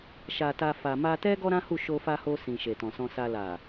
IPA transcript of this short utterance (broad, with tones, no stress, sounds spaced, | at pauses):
ʃ a˨ t a˧ f a˨ m a˧ t ɛ˦ ɡ ɔ˦ ɾ ã˦ h u˦˨ ʃ o˧ f a˧ h o˧ s ĩ˨ ʃ e˨ t ɔ̃˨ s ɔ̃˧ s a˧ l a˨